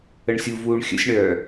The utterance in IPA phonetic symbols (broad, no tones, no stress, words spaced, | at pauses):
əɳsʲuvuːɳ xʲə̰sʲɳœː